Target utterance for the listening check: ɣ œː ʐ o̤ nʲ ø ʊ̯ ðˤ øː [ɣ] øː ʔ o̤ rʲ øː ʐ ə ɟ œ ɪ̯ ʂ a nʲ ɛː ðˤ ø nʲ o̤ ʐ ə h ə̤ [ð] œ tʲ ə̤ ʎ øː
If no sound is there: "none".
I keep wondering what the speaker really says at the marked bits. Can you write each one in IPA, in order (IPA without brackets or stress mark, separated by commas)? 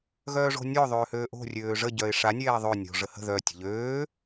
h, ð